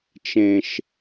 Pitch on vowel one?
low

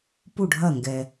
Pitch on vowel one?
falling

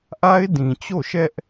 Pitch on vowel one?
high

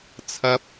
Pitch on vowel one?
low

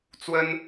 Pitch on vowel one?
high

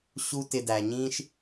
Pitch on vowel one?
high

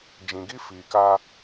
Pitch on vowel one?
low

